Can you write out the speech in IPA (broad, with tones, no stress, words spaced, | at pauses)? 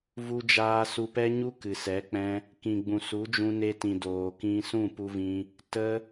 vu˧d͡ʒaː˧ su˧pɛ˦ɲu˦ kɨ˨sɛ˨˦k͡pɛ̃˦ | kĩ˨ɡ͡bũ˨ su˨˦d͡ʒũ˧ne˧tĩ˨ doː˨kĩ˧ sũ˦˨pu˧vĩ˧ | tə˦